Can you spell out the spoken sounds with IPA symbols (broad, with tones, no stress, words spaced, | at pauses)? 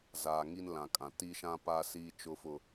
zaː˨ŋi˦nlã˨kʼã˨ ti˦ʃã˦ paː˦siː˦t͡ʃʊ˦fʊ˦